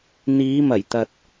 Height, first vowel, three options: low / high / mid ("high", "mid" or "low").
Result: high